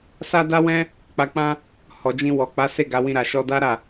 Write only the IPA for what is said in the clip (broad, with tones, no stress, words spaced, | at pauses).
sa˦da˦wɛ̃˦ | k͡pa˨k͡pã˧ | hɔ˨d͡ʒĩ˧wɔ˨ k͡pa˨˦ se˦˨ɡa˨˦wĩ˧ ɾa˨ʃɔ˧da˦ ɾa˦˨